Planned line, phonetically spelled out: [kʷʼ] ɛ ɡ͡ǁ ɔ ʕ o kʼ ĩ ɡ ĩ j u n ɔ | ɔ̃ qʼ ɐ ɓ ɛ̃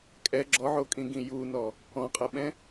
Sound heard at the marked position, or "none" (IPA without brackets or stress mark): kʼ